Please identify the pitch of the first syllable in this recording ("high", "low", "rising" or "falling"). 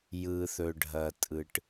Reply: low